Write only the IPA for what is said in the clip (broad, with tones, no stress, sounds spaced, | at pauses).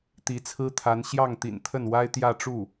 t̪ i˧˥ t͡sʰ ɹ̩˥ t̪ʰ a˧˥ n ɕ j ɑ˥˩ ŋ t̪ ḭ˨˩ n t̪ʰ ə˥˩ n w a˥ ɪ̯ t̪ j ä˥˧ ʈ͡ʂ u˥˩